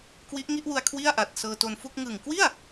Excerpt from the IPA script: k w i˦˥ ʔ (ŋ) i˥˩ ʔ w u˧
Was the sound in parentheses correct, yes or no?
yes